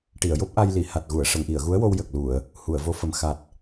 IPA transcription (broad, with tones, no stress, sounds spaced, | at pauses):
ʈ i˨˩˨ ə̯ j o˦˥ p̚ ʔ a˧ j l i˨˩˨ h a˨˩ t̚ ɣ u˨˩˨ ə̯ ʂ ə˨˩˨ ŋ ʔ i˨˩˨ ə̯ ɣ u˧˥ ə̯ w o˧ w j ə˨˩ k̚ l u˨˩˨ ə̯ | h u˨˩˨ ə̯ v o˧˥ f ə˨˩ m x a˨˩ t̚